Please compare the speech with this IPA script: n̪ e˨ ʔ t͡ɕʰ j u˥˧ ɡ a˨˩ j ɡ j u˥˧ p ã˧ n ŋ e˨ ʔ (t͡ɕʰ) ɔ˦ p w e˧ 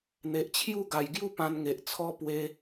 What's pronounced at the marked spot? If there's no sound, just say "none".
t͡sʰ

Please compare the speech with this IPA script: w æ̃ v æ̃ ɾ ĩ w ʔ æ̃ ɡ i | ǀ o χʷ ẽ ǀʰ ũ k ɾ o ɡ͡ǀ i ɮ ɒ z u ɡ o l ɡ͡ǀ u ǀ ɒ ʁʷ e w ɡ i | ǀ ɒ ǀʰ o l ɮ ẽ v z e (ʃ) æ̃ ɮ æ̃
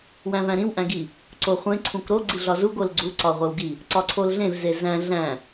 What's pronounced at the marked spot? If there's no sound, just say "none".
z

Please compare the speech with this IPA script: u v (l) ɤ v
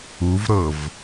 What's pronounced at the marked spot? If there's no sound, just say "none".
ɾ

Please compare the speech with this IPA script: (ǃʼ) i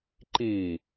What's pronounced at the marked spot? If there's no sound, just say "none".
ǃ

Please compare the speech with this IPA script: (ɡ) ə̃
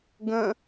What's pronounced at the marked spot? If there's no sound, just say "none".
ɡ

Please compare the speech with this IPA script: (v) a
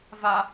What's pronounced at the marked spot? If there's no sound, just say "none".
v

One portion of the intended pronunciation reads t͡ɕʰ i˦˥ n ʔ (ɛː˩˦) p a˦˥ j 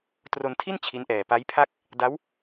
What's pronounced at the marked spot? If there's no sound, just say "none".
ɛː˨˩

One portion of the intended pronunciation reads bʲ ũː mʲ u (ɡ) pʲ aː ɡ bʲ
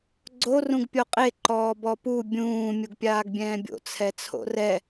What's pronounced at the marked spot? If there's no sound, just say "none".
ɡ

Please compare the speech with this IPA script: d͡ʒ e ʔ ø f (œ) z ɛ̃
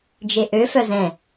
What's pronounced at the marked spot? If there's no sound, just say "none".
œ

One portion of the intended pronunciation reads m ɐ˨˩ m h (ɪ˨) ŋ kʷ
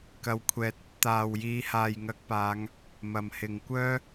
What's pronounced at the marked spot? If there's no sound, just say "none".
ɪ˨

